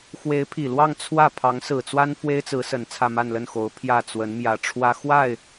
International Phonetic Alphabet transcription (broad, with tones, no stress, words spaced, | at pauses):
xwe˧˥ɪ̯pʰi˨˩lwɑ˥˧ŋ t͡sʰwä˥˩ pʰɑ˧˥ŋsɹ̩˨˩t͡swa˥n fwe˥ɪ̯t͡sɹ̩˧˥sə˨˩n t͡sʰä˥˧ma˥˧nlə˥˩nxo˧˥ʊ̯ pʰjä˥˩t͡swə˧˥nmjä˨˩ʈ͡ʂʰwä˥ xwa˥˩ɪ̯